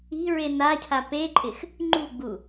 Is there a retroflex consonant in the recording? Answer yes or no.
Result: no